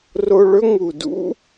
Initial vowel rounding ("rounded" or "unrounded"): rounded